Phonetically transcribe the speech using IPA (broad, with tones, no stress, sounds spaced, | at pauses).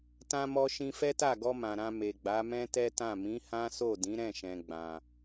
t ã˧ m ɔ˧ ʃ ĩ˧ f ɛ˦ t a˦˨ ɡ ɔ˧ m ã˨ ɾ ã˧ m e˨ ɡ͡b a˨˦ m ɛ̃˦ t ɛ˦ t ã˦˨ m ĩ˨˦ h ã˦ s o˦˨ d ĩ˨˦ ɾ ɛ̃˦˨ ʃ ɛ̃˨ ɡ͡b ã˨